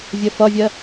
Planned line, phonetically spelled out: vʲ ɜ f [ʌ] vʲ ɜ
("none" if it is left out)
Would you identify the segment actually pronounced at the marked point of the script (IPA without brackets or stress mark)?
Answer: ʌ